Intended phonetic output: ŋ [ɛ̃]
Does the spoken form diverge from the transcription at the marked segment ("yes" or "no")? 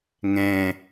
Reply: no